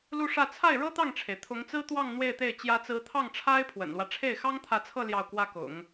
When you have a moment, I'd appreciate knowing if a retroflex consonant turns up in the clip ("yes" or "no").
yes